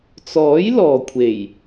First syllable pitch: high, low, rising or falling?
rising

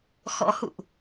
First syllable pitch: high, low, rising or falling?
rising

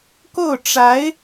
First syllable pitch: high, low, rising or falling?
falling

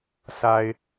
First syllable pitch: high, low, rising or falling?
low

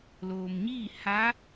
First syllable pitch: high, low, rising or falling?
low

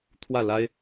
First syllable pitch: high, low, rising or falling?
falling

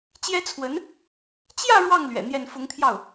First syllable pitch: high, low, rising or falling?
high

